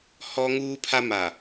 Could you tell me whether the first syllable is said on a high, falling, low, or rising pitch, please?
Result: high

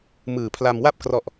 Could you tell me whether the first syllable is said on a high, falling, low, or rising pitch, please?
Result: low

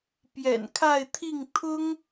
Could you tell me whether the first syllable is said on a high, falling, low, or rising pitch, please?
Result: low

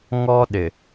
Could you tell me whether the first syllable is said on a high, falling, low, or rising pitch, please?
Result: high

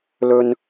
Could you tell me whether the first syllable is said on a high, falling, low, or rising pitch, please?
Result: high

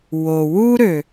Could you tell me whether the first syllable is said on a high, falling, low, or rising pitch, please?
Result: low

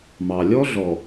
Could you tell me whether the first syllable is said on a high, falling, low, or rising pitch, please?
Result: low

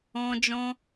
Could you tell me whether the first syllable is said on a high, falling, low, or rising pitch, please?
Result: high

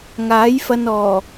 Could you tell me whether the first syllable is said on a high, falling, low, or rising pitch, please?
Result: rising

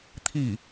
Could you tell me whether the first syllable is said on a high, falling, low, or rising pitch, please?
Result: falling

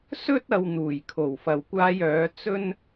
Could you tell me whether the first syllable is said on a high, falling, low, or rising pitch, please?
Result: high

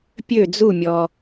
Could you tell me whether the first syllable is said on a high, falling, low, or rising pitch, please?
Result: falling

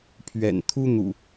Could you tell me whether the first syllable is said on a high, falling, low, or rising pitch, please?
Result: low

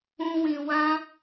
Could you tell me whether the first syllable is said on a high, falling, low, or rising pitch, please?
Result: high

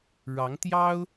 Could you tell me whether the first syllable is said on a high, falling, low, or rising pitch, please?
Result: rising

